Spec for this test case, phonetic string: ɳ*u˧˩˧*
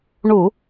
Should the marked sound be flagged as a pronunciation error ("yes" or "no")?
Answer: no